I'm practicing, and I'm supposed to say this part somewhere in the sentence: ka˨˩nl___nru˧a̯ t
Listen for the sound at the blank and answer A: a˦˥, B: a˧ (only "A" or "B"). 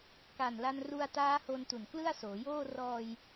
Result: B